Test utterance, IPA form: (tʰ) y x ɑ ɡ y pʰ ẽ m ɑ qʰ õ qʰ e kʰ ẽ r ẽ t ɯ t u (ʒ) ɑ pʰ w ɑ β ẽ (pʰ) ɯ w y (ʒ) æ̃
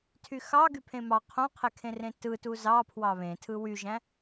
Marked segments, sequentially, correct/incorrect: correct, incorrect: z, incorrect: tʰ, correct

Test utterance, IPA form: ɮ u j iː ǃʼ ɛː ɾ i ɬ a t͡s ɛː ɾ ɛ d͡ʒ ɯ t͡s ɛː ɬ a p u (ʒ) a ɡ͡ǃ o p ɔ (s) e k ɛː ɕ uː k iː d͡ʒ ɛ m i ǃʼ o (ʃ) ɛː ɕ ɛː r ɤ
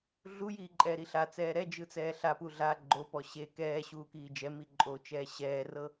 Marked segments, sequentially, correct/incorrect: incorrect: ɮ, incorrect: ɕ, incorrect: t͡ʃ

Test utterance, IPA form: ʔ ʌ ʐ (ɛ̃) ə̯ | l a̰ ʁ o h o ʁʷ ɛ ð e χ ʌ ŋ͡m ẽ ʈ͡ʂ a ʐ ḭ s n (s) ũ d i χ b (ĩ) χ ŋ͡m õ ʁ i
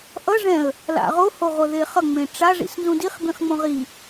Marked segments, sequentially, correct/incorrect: correct, incorrect: z, correct

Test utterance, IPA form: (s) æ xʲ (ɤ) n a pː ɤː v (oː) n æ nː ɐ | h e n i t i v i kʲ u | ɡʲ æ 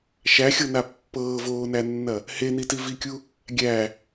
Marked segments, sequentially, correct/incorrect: incorrect: ʃ, correct, correct

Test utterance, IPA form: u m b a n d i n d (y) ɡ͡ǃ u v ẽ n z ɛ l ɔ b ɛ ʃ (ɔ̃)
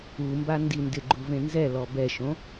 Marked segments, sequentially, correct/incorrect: incorrect: ɪ, incorrect: õ

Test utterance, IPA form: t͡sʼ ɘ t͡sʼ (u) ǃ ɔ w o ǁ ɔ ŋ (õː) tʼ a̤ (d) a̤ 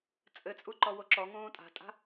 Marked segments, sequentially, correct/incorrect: correct, correct, incorrect: tʼ

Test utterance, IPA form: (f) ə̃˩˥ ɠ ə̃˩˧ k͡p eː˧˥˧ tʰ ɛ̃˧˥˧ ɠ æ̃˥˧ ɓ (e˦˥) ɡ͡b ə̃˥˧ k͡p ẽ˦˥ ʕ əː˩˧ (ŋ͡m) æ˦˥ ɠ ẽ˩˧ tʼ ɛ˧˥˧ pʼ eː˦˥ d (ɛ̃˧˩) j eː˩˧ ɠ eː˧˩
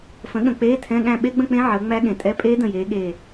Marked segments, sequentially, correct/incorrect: correct, correct, correct, incorrect: ə̃˧˩

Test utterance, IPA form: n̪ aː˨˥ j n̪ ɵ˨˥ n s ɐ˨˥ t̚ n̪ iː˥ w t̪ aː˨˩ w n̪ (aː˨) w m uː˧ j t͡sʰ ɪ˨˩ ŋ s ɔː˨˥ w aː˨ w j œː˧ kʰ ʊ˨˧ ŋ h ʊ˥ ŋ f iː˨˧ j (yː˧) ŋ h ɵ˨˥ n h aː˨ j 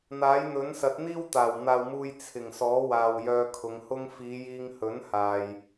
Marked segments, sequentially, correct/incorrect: correct, incorrect: iː˧

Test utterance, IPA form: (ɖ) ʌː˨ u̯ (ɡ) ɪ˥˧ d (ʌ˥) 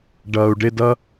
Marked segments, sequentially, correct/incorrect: correct, incorrect: ɖ, correct

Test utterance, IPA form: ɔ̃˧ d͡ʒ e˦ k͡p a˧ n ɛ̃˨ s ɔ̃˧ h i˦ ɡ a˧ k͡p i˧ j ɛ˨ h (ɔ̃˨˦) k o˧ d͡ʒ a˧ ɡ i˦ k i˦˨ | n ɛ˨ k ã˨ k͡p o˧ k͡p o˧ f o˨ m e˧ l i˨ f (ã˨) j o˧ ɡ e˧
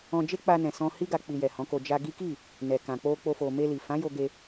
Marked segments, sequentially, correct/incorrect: correct, incorrect: ã˨˦

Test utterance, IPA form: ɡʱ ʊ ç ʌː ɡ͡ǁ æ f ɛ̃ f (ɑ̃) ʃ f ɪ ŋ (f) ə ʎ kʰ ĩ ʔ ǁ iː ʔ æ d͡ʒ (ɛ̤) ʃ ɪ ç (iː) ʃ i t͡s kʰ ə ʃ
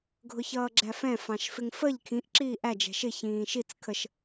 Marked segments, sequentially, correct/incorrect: correct, correct, correct, incorrect: ĩː

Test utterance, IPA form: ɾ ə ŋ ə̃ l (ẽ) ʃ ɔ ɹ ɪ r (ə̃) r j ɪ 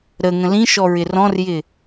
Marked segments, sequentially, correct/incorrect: incorrect: ĩ, incorrect: ɔ̃

